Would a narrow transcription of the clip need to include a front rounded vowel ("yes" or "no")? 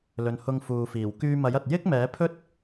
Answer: yes